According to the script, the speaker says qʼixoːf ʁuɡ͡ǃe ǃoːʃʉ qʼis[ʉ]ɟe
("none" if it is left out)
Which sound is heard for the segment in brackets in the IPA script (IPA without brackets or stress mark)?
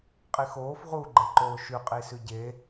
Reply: ʉ